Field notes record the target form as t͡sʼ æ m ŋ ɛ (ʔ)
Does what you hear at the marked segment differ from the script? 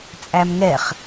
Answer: yes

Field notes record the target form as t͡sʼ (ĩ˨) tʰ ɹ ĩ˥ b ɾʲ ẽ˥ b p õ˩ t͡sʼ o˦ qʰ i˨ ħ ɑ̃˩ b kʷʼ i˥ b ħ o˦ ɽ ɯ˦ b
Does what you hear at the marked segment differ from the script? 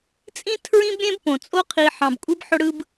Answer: yes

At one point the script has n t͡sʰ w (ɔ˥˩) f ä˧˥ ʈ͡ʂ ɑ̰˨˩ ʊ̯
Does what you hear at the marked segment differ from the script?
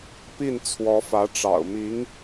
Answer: yes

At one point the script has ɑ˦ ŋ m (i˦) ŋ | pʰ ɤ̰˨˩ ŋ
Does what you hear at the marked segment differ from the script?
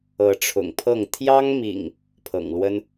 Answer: yes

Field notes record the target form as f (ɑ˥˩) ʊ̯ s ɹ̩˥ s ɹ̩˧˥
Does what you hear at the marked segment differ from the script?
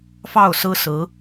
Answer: no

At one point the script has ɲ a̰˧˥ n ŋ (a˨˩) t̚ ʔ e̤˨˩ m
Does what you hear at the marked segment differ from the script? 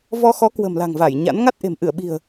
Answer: yes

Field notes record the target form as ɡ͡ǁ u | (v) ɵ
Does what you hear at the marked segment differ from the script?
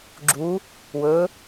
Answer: yes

